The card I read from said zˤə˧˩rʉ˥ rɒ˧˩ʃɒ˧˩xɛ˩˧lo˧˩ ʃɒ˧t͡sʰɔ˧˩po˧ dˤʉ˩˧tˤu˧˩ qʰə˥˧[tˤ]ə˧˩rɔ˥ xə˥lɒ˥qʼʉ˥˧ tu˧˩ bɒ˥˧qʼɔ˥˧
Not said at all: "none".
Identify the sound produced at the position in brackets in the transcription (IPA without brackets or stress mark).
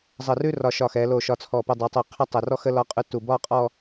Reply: tˤ